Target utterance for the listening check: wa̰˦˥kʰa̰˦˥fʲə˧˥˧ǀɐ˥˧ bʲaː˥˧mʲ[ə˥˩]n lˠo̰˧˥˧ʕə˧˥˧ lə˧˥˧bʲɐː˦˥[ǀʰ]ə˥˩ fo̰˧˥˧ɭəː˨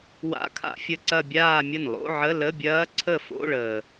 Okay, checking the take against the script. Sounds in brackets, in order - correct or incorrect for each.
correct, correct

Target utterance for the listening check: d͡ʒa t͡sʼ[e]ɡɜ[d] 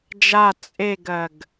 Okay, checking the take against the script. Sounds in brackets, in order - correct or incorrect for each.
correct, incorrect

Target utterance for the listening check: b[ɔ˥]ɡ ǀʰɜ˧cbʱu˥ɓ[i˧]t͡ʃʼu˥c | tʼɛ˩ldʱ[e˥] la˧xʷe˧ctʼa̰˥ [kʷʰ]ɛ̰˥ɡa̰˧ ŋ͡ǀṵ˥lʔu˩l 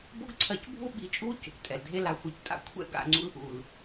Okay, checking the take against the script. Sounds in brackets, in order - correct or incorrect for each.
incorrect, correct, correct, correct

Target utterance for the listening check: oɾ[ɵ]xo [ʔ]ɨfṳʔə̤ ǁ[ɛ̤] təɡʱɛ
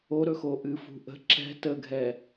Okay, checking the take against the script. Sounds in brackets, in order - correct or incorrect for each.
correct, correct, correct

